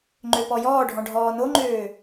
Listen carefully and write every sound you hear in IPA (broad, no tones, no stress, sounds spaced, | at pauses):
ŋ͡ǃ ø p ɔ j ɔː ɖʱ ɔ̃ ɖʱ ɔː n o ŋ͡ǃ øː